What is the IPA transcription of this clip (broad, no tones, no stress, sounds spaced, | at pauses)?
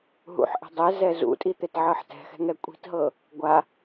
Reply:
ɦ ṵ ħ ʔ ɛ̤ dˤ ɛ z ɛ z ṵ tʼ i t̪ e t ʕ ɤ ħ t ɛ̤ x ɛ̤ ŋ ɛ kʷʼ i̤ t ɦ ɤ | ɡʷ a